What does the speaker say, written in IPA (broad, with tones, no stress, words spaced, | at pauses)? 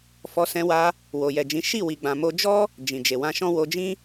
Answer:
fɔ˧sɛ̃˧wa˧ | wo˨jɛ˨d͡ʒĩ˨˦ ʃi˦˨wi˨ɡ͡bã˨mo˧ d͡ʒɔ˦ | d͡ʒĩ˨d͡ʒe˨ wã˧ʃɔ̃˦ wo˧ d͡ʒĩ˦